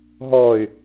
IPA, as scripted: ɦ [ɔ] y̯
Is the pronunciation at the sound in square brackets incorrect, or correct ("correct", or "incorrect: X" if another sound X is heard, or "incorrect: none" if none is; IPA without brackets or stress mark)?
correct